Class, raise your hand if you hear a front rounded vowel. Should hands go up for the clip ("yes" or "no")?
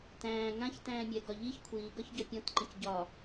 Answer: no